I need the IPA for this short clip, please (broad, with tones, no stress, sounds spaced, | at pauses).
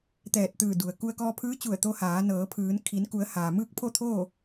t̪ ɛː˧˩ t̚ t̪ ɯː˧˩ d u˩ ə̯ k u˧ ə̯ k ɔː˧ pʰ ɯː˧˥ t͡ɕ u˧˩ ə̯ t̪ o˧ h aː˩˧ n ɤː˩˧ pʰ ɯː˩˧ n kʰ i˩˧ n k u˩˧ ə̯ h aː˩ m ɯː˥˨ k̚ pʰ o˥˨ t̪ʰ oː˥˨